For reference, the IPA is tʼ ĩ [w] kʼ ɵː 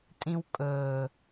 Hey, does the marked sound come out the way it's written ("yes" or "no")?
yes